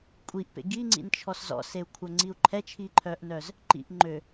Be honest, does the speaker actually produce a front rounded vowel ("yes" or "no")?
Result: yes